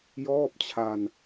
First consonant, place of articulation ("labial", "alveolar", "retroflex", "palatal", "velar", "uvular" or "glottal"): palatal